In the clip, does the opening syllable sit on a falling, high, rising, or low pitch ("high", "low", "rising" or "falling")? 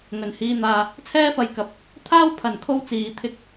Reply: low